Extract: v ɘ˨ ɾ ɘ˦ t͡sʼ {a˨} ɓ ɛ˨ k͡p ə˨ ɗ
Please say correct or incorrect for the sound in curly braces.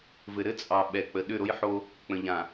incorrect